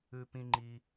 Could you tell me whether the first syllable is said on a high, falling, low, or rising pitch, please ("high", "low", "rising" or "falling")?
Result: high